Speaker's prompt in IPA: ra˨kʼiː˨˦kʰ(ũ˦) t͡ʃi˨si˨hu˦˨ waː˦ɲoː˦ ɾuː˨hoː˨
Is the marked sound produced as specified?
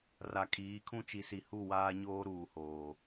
yes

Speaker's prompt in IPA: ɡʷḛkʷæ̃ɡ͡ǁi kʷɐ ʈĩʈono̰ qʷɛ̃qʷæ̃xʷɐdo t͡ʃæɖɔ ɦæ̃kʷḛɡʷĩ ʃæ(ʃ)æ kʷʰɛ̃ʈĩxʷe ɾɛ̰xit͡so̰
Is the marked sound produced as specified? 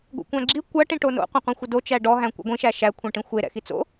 yes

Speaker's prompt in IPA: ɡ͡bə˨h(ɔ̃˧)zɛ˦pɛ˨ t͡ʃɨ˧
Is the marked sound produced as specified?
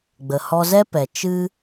no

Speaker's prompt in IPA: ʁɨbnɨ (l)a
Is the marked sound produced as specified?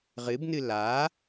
yes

